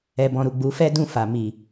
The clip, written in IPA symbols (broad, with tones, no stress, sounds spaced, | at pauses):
ɛ˨ b ɔ̃˨ ɾ u˨ ɡ͡b u˨˦ f ɛ˦ d ũ˦˨ f a˨ m i˨